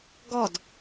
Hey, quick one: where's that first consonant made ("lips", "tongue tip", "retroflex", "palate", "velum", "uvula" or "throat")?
velum